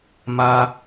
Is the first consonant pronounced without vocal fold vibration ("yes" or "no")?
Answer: no